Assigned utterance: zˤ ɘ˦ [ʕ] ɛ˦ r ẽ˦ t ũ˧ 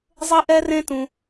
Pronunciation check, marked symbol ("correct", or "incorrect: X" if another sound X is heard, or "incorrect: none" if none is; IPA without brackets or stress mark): incorrect: ʔ